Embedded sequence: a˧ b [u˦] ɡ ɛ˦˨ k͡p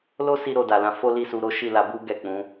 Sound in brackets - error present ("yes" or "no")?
no